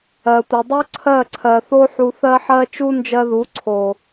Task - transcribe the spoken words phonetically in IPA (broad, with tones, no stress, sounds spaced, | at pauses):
ɜ˨ tʷ ə˨ dˤ u˦ ǀʰ ɜ˦˨ ǀʰ ɜ˨ θ o˦ ħ u˧ θ ɜ˦ ħ ɜ˦ t͡ʃ u˦ n d͡ʒ ɜ˧ ð u˨˦ ǀʰ o˨